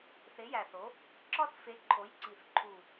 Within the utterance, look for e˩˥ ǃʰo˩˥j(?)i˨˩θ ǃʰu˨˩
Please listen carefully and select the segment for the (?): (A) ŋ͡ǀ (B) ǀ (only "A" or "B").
B